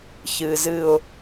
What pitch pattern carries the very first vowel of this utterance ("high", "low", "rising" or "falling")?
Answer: low